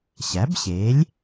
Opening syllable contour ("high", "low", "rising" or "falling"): rising